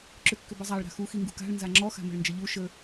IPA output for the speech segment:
ǁ ʏ kː ʏ b ə zˤ a ɭ ɾ a̤ x u x i ŋ ɡ ṳ k a̤ ɭ n z a ŋ͡ǁ ɔ x a̤ m ə̤ ɭ n d͡ʒ ə ʎ u ʃ ə

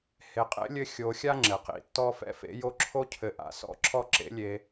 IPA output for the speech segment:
h e˨ qʼ ḛ˥ lʲ ɘ˦ xʲ o˨ xʲ a˦ ŋ͡ǁ ɘ˩ q ḭ˩ tː ɔ˦ f ɛ̰˥ f ḛ˦ j o˦ ǁʰ o˥ cʰ ɘ˨ ʔ a̰˨ s ɔ̰˦ ǁʰ ɔ˦ ǁ ḛ˦ lʲ e˨

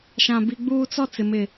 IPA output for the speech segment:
ʃ ã˦ b i˦ ɡ͡b uː˦ t͡s ɔ˦ t͡s ɪ˨ m ɪ˨

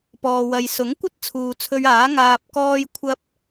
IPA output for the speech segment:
p ɔː˨ w ɐ˨ j s ʊ˨˥ ŋ kʷ ɐ˥ t̚ t͡sʰ uː˨ t͡sʰ ɵ˧ ɥ aː˨˥ ŋ aː˧ p̚ k ɔː˥ j kʷʰ ɐ˥ p̚

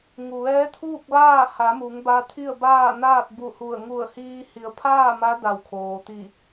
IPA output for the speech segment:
ŋ u˩ ʋ ɛː˧˥ t̪ʰ uː˥˨ k̚ ʋ aː˥˨ h a˩˧ m u˩˧ ŋ b a˧ t̪ʰ i˥˨ ə̯ b aː˥˨ n aː˥˨ t̚ b u˧˩ h u˧˩ ə̯ ŋ u˧˩ ə̯ h iː˧ h i˩˧ ə̯ pʰ aː˥˨ m a˧˥ d a˧˩ w kʰ oː˩ t̪ i˧˩

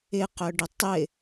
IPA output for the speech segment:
ɪ q œ ɖ ɪ tˤ ɪ

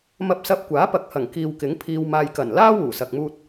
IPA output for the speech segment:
m ɐ˧ p̚ s ɐ˧ p̚ kʷ aː˨˥ p ɐ˨˥ k̚ h ɐ˨˩ ŋ k iː˨ w k ɪ˨˥ ŋ pʰ iː˧ w m aː˧ j k ɐ˨˩ n l aː˥ w uː˨˩ s ɐ˨ k̚ m uː˧ t̚

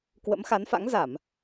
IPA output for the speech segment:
k w ə̰˧˥ m x a˨˦ n f a̰˧˥ ŋ z a˧˩˨ m

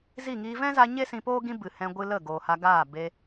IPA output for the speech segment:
z i˦˨ ŋ iː˧ v ɛ̃˦ z a˧ ɲ e˦ s ĩ˧ p oː˦ ɡ ĩ˦ b ɨ˨ h ɛ̃˧ ɡʷ ɨ˧ l ə˦˨ ɡ oː˨ h a˧ ɡ aː˦˨ b e˧

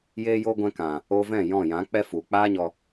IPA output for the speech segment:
j eː˧ j oː˧ ɡʷ ɛ̃˧ k ã˨ | o˧ v ɛ̃˦˨ j ɔ̃˦˨ j ã˨˦ k͡p ɛ˦ f u˨ k͡p aː˦ ɲ ɔ˧

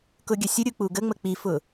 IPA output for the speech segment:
k ʊ ɡʲ ə sʲ ʊ ɾʲ u k͡p u ɡ ə ŋ͡m ə k͡p i f ʊ

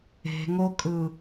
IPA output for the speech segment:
e̤ ŋ o kʼ ɯ

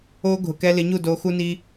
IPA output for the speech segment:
o˧ ɡʱ ʊ˨ k ɛ˧ l ɪ˨˦ ɲ u˦˨ d o˧ x u˦ n i˦

